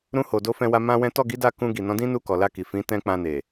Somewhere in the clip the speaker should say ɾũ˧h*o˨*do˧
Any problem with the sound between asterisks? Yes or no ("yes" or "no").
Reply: no